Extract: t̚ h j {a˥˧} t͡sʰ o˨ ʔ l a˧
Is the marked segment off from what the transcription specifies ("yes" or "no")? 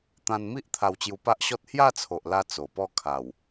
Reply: no